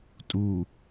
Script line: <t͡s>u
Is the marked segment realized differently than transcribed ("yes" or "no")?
yes